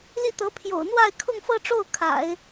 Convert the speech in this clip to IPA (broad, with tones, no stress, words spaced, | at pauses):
li˥˩ t̪ɤ˧˥pʰjo̰˨˩ʊ̯ n̪wa˥˧ɪ̯kʰʊ˥˧ŋfɤ˥˧ʈ͡ʂo˥˩ʊ̯ kʰa̰˨˩˦ɪ̯